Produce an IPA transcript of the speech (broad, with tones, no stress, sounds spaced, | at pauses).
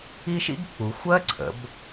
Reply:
i˥ ʃ ḭ˥ ɡ k͡p u˨˦ xʷ ɜ˥ ǀʰ ə̰˨˦ b